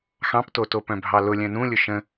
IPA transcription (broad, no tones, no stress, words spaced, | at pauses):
xɑ̃ptoto pœ̃bʱɑlʊ lʲœ̃nũlʲʊ ʃə̃